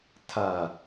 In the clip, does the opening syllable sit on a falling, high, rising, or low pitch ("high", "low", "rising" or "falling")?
low